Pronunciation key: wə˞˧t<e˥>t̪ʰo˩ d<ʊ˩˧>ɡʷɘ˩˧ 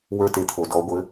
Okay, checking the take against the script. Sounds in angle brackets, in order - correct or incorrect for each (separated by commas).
incorrect, incorrect